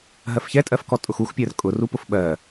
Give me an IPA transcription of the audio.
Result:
ɦ ɜ f ç ɛ tʼ ɜ f k ɔ tʼ ʊ x u x pʲ ɜ r kʼ ʊ r u p ʊ f ɓ ɜ

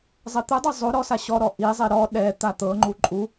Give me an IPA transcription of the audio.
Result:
zˤ ɛ t̪ ɯ dˤ ɤ zˤ o ɾ ɔ s a ɕ ɔ ɾ ɔ ʔ i zˤ i ɾ ɔ ɗ ɛ t̪ a t̪ ɤ ŋ͡ǃ u ǃʼ u

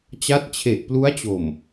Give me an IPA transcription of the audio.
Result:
t͡ɕ a˦˥ t̚ t͡ɕʰ e˨˩ ʔ p l u˦˥ a̯ t͡ɕ o˨˩ m

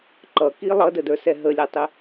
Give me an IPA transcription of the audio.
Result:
ǃ ʌ k i lˠ ʌ d ə d ə˞ s ɛ ɦ ə lʲ æ tˤ ɪ

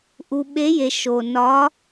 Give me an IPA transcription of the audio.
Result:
ʔ u˨ ɓ e˨˦ j e˨ ʃ o˨ n ɒ˨˦

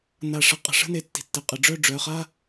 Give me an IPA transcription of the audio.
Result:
n a˧˩ ʂ ə˥˩ qʼ ə̤˧˩ ʂ ə̤˥˧ n e˩˧ tː i̤˩˧ tː ɪ˩˧ qʼ ə˩˧ ɖ͡ʐ œ˥˩ ɖ͡ʐ œ˩˧˩ χ a˥˧

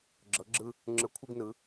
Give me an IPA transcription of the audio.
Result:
ɡ͡ǁ ɤ˨˥ ɡ͡ǁ ɯ˥ | ŋ͡ǁ ɯ˨˥ kʷʰ ɯ˥ ɡ n ɯ˨˥

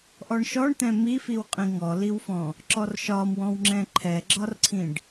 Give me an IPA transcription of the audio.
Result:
ʔ ɔ ɳ ʃ ɔ ɳ t̪ ɛ̃ m i f i w qʼ ĩ ŋ ɔ l i w f ɔ̃ | ǁ ɔ r ʃ ɒ m w ɔ̃ w ŋ͡ǁ ɛ̃ ǃʰ ɛ ɡ͡ǁ ɒ r ǀʰ ĩ ɖ

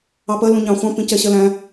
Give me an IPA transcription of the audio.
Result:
ɑ p ɜ l ũ ɲ ɑ̃ χʷ ɑ̃ p ĩ c ɛ ɕ ɜ l æ̃

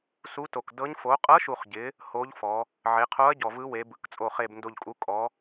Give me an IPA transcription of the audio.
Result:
s u˧˥ t o˨˩ k d ɤ˧˥ ɲ f o˩˧ qʼ ɤ˧˥ ʃ u˨˩ χ ɟ ɪ˩˧ | h o˧˥ ʎ f ɔ˩˧ | ʕ e˩˧ qʰ o˧˥ ɐ̯ ɟ ɔ˨˩ v ɯ˧˥ w e˩˧ b ɯ˩˧ k t͡sʼ o˨˩ χ e˨˩ b n d o˨˩ ʎ kʼ u˩˧ kʼ ɔ˩˧

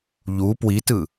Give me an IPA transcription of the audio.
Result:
ʎ u p w i t ɯ

